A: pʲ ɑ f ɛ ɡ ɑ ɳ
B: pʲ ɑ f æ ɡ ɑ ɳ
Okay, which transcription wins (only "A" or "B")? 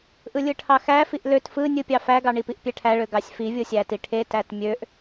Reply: B